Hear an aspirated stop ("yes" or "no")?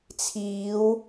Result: yes